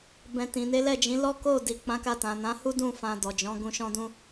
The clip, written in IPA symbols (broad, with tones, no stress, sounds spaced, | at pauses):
b ɛ̃˨ t ĩ˨ n e˨˦ l ɛ˦˨ d͡ʒ ĩ˨˦ l ɔ˦ k o˦˨ d i˨ k͡p ã˨˦ k a˧ t ã˨ n ã˨˦ h u˦ d ũ˦˨ f ã˧ d ɔ˨ d͡ʒ ɔ̃˨˦ ɡ ũ˧ ʃ ɔ̃˦ d ũ˦